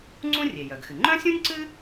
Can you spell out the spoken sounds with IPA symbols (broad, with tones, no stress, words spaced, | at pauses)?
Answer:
ŋ͡ǀũ˥rʲe˩jœ˩ɡxɨ˩ ŋ͡ǃœ̃˥sʲũ˥nʲǀɨ˥